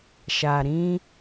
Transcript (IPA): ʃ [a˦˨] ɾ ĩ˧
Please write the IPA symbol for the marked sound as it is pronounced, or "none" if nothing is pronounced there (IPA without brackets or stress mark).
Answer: a˨